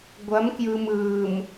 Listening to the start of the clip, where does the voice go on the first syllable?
rising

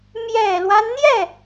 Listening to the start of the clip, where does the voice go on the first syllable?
low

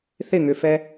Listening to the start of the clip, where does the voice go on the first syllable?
falling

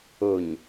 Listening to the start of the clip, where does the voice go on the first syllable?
low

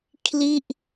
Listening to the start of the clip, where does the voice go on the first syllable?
falling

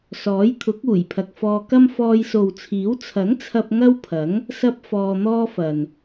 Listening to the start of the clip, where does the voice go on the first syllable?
rising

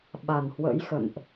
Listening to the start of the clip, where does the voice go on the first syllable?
low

